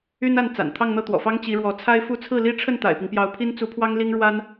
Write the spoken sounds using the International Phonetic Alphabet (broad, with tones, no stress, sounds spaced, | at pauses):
y˥ n a˥˩ n t͡s a̰˨˩ n t̪ʰ ɑ˥˧ ŋ n̪ ɤ˥˩ t̪ w ɔ̰˨˩ f ɑ˥ ŋ t͡ɕ i˧˥ ɻ w ɔ˧˥ t͡sʰ a˥ ɪ̯ f u˥˧ t͡sʰ ɹ̩˥˩ l i˥ ʈ͡ʂʰ ə˥˩ n t̪ a̰˨˩ ɪ̯ p i˦ ŋ p j ɑ˧˥ ʊ̯ pʰ i˥ n t͡s u˧˥ pʰ w ɑ˥ ŋ l i˥ ŋ ɻ w a˥ n